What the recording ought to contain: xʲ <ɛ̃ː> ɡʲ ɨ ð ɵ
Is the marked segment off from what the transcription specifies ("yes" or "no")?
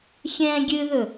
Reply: no